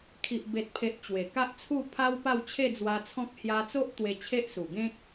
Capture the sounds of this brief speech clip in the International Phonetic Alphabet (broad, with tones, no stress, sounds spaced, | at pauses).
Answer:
kʰ i˨ ʔ b e˨ t̚ pʰ e˨ ʔ t͡ɕ w e˨˩ k a˦ ʔ t͡sʰ u˥˧ pʰ a˦ w p a˥˧ w t͡ɕʰ e˥˧ d͡z w a˧ t͡sʰ ɔ̃˦ k̚ h j a˧ t͡s o˦ ʔ t̪ w e˧ t͡ɕʰ e˦ ʔ s u˨˩ ɡ ẽ˦ k̚